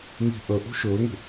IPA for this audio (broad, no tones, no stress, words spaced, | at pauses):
ŋi̤ ʔə ʔṳʃɵːŋṳ